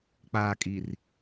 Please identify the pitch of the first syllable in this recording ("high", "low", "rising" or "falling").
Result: low